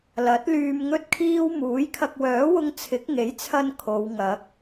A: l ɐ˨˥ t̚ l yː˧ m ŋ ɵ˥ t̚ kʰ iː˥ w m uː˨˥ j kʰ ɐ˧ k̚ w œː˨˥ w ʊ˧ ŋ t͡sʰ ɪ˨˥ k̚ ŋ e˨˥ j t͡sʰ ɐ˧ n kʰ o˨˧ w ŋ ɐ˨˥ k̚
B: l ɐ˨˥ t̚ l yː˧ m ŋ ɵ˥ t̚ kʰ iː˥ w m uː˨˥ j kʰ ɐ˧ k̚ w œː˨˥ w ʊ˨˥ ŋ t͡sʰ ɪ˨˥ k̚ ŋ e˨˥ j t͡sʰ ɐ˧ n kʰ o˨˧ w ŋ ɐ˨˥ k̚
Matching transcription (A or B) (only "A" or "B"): A